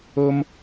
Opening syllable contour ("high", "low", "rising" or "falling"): high